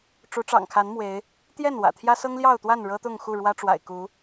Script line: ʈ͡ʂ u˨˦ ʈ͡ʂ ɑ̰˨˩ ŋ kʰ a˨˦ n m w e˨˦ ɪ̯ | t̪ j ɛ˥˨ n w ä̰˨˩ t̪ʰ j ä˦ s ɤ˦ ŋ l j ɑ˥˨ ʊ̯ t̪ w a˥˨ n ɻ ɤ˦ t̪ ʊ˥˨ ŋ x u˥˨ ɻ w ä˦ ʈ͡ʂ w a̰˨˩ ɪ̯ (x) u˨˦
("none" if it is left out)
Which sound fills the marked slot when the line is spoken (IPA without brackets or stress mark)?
k